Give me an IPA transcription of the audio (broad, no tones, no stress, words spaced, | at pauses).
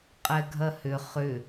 qʼɛɡʱɐhʏ χʏ